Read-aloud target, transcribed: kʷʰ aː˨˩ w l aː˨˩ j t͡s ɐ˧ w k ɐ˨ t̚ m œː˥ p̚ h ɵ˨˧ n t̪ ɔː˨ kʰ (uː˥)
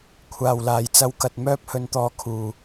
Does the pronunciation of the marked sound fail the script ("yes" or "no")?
yes